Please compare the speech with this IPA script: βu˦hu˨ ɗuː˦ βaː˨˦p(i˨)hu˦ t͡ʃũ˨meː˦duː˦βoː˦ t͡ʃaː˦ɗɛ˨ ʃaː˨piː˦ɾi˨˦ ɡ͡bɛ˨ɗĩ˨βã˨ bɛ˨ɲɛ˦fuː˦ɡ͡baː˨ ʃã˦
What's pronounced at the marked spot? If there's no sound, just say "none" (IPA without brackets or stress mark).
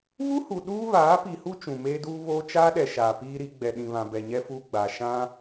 i˨